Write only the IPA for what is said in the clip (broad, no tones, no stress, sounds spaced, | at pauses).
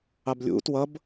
ɑ b lʲ ṵ t w ʌ b